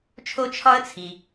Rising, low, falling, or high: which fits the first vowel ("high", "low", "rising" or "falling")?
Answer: high